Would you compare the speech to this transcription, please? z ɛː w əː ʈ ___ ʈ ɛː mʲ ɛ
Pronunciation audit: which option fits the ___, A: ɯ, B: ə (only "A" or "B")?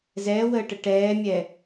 B